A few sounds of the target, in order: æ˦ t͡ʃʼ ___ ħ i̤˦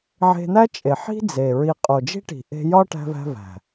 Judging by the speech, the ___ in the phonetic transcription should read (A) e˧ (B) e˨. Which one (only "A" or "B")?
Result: B